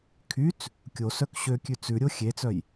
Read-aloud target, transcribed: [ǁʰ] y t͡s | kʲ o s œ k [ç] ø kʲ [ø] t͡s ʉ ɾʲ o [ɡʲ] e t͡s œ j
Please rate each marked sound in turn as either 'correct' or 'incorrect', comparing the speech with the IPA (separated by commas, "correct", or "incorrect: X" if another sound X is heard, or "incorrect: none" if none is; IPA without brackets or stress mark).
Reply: incorrect: kʰ, incorrect: ɕ, incorrect: ʉ, incorrect: xʲ